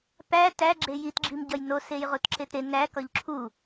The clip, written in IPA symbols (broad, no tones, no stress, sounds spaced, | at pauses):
p æ t æ ɡ͡ǁ e j i t ɡ͡ǁ i m ɟ ɒ j n o s e j ʁ u t ǁ e t ɾ e n æ k ɒ ʎ ǁʰ u